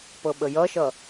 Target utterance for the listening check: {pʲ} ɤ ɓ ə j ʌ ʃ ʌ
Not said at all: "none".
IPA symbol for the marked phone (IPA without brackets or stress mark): p